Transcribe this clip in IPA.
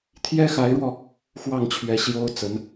t̪ʰ j ɛ˥ x a˧˥ ɪ̯ ɻ w ɔ˧ | x w ɑ˥˩ ŋ t͡ɕʰ ɥ ɛ˧˥ ɕ j o˥ ʊ̯ t͡s ə˧˥ n

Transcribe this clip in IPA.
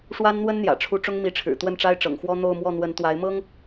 ʂ w a˥ n n̪ w ə˥ n n̪ j ä̰˨˩ ʈ͡ʂʰ u˧˥ ʈ͡ʂ ʊ˥ ŋ m i˧˥ ʈ͡ʂʰ ɻ̩˨˩ t̪ w ə˥˩ n ʈ͡ʂ a˥ ɪ̯ ʈ͡ʂ ɤ̰˨˩ ŋ x w ɔ˥ n̪ o˥˧ ʊ̯ m w ɔ˥˩ n̪ w ə˧˥ n t̪ w a˧˥ ɪ̯ m ɤ˥ ŋ

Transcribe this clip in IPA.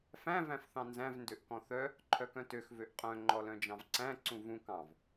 f æ̃ v æ̃ f θ ɑ̃ n z æ̃ v n d ø ʔ k ɔ̃ θ œ | ǃʰ œ k œ̃ t ø x v ø ʔ qʼ œ̃ ŋ͡ǃ ɔ l œ̃ d͡ʒ ɑ̃ v ǀ æ̃ ǀ ũ v ũ k ɑ̃ v

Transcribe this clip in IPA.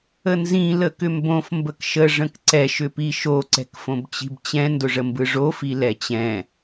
ə n z ĩ l ə k ʏ m b õ f m b ə k ʃ ə ʐ ə̃ k ǀ ɛ ʃ ʏ p i ʃ o ǀ ɛ̤ k f õ b t͡ɕ i̤ b t͡ɕ ɛ̃ n d ʊ ʐ ə m b ɯ ʐ o f i l ɛ t͡ɕ ɛ̃

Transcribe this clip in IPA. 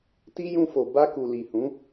t i˦ j ũ˧ f o˨ b a˧ k u˨ l i˨ h ũ˨˦

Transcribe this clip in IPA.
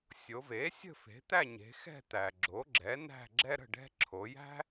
sʲ o˩˧ v e˩˥ sʲ ə̤˥˨ f e̤˩˥ t̪ æ˥˨ ɲ e̤˩˧ x ɛ̤˥˨ t̪ æ˩ ɡ͡ǁ o˩˥ ɡ͡ǁ ɛ˩˥ n æ̤˥˨ ɡ͡ǁ ɛ˥ ɾ ə̤˥˨ ɖ ɛ̤˥ ǁʰ o˩˧ j æ̤˥

